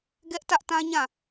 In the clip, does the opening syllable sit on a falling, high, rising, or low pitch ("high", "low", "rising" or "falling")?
high